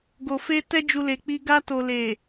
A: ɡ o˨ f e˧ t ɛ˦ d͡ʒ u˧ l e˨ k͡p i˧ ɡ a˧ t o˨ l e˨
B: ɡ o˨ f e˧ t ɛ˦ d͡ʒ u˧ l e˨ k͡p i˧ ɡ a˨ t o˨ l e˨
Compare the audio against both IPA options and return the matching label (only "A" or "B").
A